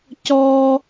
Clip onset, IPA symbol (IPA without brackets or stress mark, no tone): c